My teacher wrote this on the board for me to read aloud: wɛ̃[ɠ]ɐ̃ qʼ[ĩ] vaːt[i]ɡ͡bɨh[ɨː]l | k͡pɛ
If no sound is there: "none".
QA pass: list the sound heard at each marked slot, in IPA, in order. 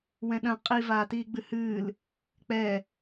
ɗ, i, iː, ɨː

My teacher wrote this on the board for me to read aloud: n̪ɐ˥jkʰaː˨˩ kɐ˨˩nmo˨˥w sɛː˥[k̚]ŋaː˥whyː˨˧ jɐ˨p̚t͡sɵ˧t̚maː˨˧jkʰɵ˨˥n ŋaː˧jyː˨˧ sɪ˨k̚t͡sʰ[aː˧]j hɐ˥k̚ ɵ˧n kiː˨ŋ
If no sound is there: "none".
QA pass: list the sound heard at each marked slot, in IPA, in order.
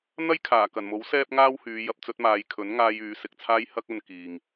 p̚, aː˧

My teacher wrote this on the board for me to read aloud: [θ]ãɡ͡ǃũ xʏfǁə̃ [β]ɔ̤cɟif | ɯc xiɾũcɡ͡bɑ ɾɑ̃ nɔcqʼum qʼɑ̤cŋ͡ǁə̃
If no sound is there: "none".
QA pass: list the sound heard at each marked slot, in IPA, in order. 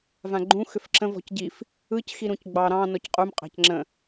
v, v

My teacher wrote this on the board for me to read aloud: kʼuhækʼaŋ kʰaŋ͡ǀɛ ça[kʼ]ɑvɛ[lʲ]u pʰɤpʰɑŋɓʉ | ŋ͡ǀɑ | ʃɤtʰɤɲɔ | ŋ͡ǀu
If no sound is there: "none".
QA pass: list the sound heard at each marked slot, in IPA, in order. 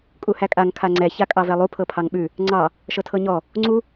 kʼ, lˠ

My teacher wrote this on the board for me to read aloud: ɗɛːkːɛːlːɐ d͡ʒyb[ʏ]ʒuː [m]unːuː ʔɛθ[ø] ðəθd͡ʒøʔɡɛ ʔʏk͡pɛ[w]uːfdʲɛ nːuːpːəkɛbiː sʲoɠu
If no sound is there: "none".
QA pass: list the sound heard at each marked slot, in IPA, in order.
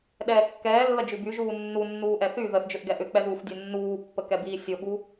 y, nː, y, ð

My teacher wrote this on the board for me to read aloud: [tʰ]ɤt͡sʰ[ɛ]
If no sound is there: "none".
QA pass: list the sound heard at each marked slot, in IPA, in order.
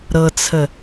ɾ, ə

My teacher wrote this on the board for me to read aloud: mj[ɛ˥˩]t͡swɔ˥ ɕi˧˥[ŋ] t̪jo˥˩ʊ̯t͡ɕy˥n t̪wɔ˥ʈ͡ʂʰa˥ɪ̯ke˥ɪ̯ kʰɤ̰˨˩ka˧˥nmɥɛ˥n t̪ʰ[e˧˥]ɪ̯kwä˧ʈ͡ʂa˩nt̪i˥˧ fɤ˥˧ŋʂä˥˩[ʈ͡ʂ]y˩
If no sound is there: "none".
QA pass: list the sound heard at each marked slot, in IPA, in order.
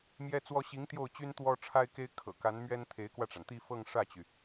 ɛ˥, ŋ, e˧˥, t͡ɕ

